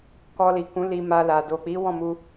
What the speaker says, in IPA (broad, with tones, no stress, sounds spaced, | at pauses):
k ɔ˧ l i˨ k ũ˨˦ l i˧ m a˧ l a˨ d o˨ k͡p i˨˦ w ɔ̃˦˨ m u˧